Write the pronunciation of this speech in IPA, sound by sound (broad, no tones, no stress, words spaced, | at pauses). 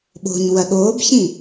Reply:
ɓo̤ɲ wɐɠoːbçĩ